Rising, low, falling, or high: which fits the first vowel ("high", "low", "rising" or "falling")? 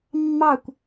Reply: falling